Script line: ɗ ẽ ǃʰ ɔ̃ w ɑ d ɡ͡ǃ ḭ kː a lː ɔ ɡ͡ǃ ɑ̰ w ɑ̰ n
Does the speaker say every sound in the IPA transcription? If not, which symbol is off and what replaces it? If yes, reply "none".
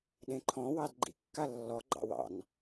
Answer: none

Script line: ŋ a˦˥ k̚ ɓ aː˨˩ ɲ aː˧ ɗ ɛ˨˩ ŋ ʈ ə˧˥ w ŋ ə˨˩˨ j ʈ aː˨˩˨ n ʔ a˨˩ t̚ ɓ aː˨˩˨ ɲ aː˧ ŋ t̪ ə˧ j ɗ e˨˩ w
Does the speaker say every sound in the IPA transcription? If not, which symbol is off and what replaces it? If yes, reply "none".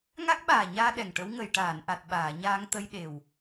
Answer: none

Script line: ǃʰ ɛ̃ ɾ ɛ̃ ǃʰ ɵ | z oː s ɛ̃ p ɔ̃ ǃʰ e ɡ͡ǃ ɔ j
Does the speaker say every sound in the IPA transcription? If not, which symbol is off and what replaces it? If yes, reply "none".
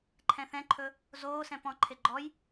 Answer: ɾ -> θ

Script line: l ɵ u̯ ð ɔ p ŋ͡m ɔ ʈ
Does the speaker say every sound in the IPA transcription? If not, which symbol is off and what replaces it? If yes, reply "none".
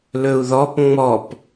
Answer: ʈ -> p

